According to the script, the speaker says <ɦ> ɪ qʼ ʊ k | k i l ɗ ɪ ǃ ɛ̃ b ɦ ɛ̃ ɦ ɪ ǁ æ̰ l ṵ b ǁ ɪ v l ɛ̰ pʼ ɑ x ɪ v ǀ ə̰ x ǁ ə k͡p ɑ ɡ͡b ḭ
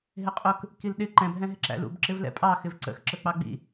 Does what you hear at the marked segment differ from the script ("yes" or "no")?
no